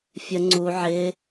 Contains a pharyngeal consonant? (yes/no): yes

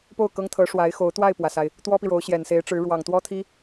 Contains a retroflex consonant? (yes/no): yes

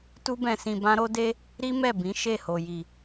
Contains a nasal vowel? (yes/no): yes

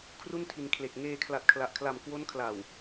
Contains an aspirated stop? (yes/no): yes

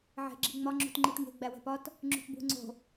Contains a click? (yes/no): yes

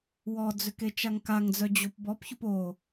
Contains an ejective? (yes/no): no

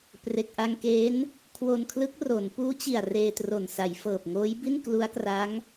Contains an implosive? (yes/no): no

